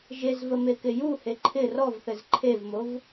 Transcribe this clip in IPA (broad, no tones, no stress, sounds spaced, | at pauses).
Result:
ʒ e z v ə m e k ɪ j u h e ǃʰ ɪ r ɔ v θ ɘ z ǃʰ e v m o v